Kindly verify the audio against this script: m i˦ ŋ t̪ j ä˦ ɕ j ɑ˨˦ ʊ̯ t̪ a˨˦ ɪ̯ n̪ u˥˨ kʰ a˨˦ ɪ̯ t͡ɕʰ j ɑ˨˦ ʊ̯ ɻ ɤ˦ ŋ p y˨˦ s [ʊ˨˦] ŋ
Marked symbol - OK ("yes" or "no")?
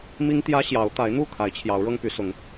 yes